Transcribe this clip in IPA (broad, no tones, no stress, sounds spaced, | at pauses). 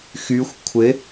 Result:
x y xʷ kʷʰ ɪ